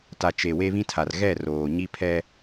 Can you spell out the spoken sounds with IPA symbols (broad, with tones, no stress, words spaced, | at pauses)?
ta˨t͡ʃe˨ we˦βĩ˦tʰa˨r ɣɛ˦˨ roː˨ɲi˦pʰɛ˦